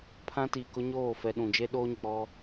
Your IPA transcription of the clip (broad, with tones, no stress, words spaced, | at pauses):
pʰã˦ti˨kʊ˦ɲoː˦˨ fɛ˨ ɗũ˨ d͡ʒe˦ɗoː˦ɲɪ˨k͡pɔ˦